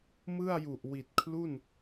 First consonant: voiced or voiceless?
voiced